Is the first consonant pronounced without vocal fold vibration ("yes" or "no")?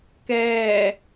yes